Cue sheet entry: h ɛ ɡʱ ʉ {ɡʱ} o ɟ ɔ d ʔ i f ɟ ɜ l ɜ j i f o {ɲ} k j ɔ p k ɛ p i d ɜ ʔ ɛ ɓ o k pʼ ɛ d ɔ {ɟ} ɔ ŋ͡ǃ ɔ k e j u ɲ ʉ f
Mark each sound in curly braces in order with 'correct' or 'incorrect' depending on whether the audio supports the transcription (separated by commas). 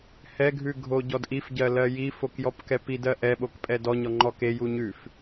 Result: correct, incorrect, incorrect